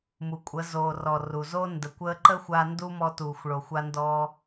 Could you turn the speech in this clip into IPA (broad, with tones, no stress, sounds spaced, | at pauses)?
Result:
m u˨ kʷʼ ə˨˦ z oː˨ r ɔ˨ r u˨ z o˦ n d ə˨ kʷ əː˧ ǃ ə˦ xʷ a˧ n d u˦ m ɔ˧ t uː˨ xʷ ɭ o˨ xʷ a˦ n d ɔː˦